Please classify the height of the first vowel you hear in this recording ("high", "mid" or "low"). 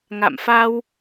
low